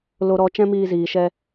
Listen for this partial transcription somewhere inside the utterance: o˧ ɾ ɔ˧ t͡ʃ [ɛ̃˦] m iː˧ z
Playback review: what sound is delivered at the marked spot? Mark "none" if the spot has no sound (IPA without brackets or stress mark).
ɛ̃˦